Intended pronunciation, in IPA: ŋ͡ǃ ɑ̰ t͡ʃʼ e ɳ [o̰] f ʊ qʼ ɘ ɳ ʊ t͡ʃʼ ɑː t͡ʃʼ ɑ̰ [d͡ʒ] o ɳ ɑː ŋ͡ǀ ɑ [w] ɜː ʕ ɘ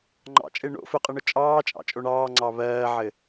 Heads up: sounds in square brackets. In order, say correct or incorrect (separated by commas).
correct, incorrect, incorrect